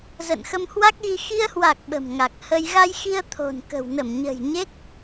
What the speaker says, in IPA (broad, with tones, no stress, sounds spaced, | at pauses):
z ə̰ː˧˨ n x ə˧ m h w a˦˥ k̚ ɣ i˧ x i˧ ə̯ h w a˨˩ k̚ ɓ ə̤˨˩ m ŋ a˨˩ k̚ h ə˧ j ɣ a˧ j x i˧ ə̯ t̪ʰ o̤˨˩ n k ə̤˨˩ w n ə˧˩ m ɲ ə̤˨˩ j ɲ e˦˥ k̚